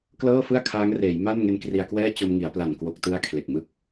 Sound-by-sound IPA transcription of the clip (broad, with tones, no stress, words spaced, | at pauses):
klɤː˥˩fɯ˥˩a̯kʰaː˦˥ŋreː˩˦j ma˥˩n ŋe˦˥nkri˧a̯kwɛː˥˩ t͡ɕo˧mŋi˩˦a̯pla˨˩n kwo˨˩k̚tɯ˧a̯ kʰle˨˩k̚mɯ˥˩k̚